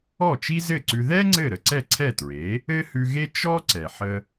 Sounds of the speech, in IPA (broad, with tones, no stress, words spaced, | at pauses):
ɔ˥˩t͡ʃi˥zɘ˥˩ǀʉ˧ ðɛ˥ ŋ͡ǀɘ˥˩ɾə˧ ǀɛ˥˩ǀʰɛ˥˩tɹe˩˥ | ɘ˥hʉ˧ɣe˥ t͡ʃɔ˥ ǀɛ˩ħə˧